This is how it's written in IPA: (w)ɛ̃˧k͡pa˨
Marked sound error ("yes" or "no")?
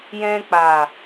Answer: yes